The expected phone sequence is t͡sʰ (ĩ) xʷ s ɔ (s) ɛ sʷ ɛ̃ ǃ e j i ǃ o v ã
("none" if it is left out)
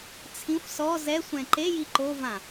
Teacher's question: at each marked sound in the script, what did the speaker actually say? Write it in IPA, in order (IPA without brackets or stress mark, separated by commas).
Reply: ĩ, z